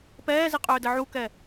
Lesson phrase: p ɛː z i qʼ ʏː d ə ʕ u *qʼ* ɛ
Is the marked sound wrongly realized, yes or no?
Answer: yes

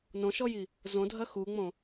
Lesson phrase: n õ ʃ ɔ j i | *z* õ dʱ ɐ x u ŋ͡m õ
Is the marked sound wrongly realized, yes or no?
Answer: no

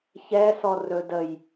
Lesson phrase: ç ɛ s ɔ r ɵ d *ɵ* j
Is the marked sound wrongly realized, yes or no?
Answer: yes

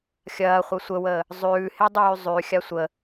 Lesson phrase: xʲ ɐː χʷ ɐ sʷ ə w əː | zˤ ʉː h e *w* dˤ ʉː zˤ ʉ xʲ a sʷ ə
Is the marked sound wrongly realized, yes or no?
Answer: yes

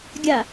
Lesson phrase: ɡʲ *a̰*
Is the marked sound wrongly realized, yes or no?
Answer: yes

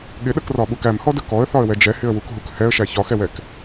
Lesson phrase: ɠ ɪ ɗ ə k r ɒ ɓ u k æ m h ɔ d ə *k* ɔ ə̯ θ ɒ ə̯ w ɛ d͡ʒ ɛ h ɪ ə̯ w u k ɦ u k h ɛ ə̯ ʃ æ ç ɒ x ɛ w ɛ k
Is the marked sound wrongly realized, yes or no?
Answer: no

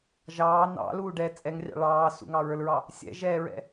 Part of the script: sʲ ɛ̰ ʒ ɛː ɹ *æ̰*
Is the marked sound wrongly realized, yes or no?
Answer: yes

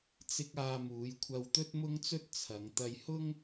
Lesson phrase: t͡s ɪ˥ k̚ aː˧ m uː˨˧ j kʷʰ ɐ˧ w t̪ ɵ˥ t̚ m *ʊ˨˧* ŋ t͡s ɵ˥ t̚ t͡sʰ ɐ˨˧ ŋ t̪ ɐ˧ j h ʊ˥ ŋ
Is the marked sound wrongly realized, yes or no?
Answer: yes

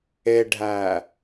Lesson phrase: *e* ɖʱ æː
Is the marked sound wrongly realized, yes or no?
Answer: no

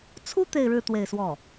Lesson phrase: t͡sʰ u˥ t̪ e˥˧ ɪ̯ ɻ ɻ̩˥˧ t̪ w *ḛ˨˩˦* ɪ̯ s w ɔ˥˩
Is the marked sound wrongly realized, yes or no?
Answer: yes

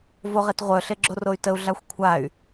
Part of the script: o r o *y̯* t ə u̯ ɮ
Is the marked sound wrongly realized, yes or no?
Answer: no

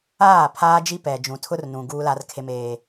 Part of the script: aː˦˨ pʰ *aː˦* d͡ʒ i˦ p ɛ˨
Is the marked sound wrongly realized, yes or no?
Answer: no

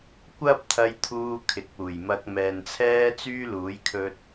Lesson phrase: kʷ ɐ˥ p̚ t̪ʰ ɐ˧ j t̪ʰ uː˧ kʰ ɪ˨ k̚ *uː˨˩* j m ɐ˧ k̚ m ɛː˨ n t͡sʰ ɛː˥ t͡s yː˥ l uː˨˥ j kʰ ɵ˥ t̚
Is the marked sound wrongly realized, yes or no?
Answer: no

